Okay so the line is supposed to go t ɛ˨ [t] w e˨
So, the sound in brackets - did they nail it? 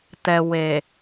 no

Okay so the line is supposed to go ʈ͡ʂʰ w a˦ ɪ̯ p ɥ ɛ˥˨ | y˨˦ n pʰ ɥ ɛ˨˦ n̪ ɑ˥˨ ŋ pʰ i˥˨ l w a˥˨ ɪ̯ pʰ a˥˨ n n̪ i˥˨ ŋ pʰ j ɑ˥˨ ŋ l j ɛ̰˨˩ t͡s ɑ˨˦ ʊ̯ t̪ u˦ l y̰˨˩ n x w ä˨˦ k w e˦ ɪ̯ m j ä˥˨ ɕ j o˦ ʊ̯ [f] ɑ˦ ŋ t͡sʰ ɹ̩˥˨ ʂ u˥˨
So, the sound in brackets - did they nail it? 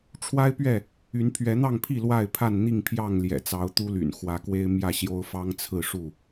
yes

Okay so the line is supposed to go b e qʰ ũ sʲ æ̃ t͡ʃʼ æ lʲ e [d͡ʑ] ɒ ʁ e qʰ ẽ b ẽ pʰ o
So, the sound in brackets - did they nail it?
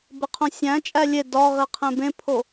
no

